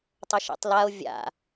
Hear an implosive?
no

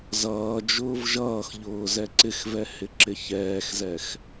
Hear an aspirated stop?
no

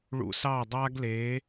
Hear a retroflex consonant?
yes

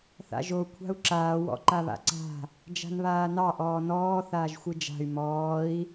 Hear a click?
yes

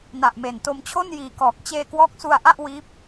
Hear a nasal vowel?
no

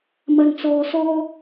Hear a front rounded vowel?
no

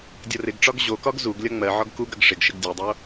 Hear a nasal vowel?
no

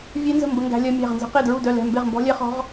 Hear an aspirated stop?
no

